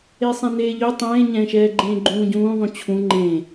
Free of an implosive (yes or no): yes